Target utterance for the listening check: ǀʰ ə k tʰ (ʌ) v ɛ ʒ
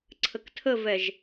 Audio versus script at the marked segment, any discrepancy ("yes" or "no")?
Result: yes